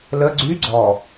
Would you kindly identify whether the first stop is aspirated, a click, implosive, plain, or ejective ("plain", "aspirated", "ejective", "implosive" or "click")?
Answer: click